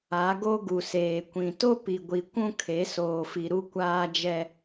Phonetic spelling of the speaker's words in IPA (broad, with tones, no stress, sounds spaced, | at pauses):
a˨˦ ɡ o˦ ɡ u˨ s eː˨ kʷ ĩ˨ t o˦ p i˨ ɡʷ i˨ kʷ ũ˦ kʰ e˨˦ s oː˨ f i˨ ɾ u˦ kʷ aː˦ d͡ʒ ɛ˦